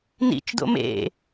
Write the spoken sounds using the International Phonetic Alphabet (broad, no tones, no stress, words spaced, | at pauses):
nḭt͡ʃdo̰ mḛ